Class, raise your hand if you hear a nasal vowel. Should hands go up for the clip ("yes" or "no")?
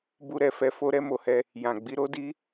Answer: yes